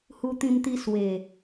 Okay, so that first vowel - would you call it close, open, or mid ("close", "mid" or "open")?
close